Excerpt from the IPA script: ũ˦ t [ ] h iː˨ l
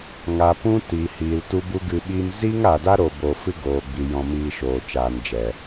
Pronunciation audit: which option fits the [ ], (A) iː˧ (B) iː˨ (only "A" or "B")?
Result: B